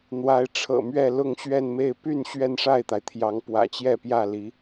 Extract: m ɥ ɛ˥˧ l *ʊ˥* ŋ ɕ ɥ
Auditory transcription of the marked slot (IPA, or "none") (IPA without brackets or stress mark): ʊ˥˧